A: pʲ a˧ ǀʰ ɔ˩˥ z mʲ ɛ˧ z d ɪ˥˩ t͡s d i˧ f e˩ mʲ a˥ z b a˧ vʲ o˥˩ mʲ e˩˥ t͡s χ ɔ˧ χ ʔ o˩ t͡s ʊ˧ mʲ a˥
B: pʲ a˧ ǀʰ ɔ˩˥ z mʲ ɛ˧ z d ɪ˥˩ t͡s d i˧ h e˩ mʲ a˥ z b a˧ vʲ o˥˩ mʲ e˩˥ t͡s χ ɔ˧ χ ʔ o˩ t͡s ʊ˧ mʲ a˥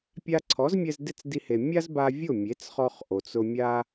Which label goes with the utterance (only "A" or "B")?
B